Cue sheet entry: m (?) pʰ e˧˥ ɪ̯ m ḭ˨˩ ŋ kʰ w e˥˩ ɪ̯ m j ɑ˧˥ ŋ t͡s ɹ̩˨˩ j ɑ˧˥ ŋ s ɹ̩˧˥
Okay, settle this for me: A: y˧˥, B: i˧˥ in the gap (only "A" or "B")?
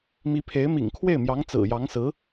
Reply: B